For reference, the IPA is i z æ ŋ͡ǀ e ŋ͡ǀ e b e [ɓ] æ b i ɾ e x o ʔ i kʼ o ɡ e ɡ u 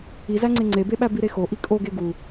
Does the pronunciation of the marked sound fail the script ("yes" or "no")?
no